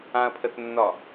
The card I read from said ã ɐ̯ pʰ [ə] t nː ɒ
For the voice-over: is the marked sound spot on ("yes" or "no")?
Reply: yes